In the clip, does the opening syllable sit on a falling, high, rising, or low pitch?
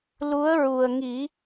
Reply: rising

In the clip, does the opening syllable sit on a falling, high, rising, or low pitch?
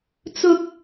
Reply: low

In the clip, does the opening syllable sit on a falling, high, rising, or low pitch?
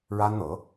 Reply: high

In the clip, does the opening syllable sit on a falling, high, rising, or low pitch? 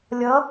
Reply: rising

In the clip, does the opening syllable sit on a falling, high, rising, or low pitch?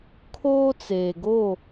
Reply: high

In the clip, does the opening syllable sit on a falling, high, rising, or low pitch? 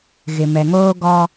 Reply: low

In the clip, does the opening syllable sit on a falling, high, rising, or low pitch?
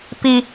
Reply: high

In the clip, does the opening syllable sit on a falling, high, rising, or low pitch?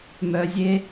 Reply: low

